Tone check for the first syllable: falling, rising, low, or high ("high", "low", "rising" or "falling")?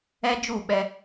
high